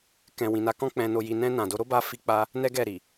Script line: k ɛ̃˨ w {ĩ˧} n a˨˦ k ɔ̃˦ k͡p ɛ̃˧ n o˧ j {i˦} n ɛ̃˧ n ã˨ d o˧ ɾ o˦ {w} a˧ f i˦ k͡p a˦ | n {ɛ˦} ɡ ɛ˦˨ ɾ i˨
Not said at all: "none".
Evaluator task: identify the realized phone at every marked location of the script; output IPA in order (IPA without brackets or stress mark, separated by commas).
ĩ˨, i˧, b, ɛ˦